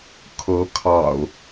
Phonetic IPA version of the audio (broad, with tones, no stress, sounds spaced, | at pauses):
kʰ ɤ˨˦ kʰ ɑ̰˨˩ ʊ̯